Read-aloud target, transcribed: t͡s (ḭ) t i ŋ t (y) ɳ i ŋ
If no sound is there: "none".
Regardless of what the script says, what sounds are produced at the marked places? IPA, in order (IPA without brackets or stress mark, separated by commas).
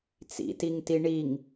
ḭ, i